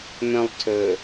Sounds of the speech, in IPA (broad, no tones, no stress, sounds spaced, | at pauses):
m œ̃ lˠ tʰ ɵ